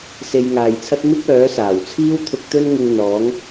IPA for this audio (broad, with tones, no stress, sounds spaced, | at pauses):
s e˧ j ŋ aː˨ j t͡sʰ ɐ˥ t̚ m ɪ˥ k̚ œː˨˥ s aː˨˩ w t͡sʰ iː˥ w t̪ʰ ʊ˧ k̚ t̪ ɵ˥ n ŋ ɪ˧ ŋ n̪ ɔː˨˥ ŋ